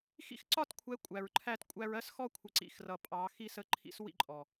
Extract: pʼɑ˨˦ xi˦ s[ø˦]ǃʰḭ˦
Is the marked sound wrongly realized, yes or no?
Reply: yes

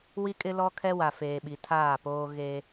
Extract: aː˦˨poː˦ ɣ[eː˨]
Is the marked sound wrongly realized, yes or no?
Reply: yes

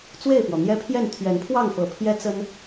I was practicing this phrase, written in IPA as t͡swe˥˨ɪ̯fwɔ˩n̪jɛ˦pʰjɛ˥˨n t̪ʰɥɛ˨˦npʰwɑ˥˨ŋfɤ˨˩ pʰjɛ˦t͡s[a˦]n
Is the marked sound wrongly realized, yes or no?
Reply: yes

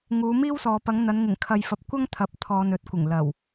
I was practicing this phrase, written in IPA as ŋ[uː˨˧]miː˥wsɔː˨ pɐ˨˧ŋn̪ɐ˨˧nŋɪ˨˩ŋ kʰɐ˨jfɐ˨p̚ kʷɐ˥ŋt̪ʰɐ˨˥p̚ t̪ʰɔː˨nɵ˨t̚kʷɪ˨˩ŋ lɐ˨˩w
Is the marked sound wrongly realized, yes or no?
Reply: no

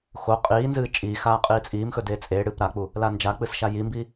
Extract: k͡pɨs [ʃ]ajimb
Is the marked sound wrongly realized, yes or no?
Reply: no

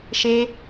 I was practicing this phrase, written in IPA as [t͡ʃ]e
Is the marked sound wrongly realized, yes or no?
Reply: yes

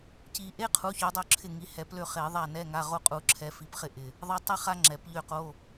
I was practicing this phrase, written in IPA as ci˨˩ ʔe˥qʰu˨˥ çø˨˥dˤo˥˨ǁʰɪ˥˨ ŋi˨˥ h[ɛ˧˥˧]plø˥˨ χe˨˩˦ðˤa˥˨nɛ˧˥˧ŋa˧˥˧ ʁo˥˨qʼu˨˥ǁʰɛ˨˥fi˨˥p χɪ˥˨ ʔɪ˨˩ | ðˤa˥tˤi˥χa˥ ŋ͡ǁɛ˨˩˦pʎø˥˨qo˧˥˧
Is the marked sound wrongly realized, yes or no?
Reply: yes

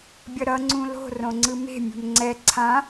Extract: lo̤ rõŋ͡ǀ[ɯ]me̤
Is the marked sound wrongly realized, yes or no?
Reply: no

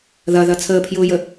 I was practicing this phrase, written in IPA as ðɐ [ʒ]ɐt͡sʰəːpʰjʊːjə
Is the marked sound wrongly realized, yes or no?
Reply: yes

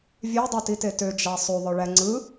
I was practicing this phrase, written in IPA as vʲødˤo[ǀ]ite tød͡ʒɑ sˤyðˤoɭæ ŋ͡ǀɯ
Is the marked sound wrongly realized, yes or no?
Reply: yes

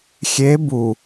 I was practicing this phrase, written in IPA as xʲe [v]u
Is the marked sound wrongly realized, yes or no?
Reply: yes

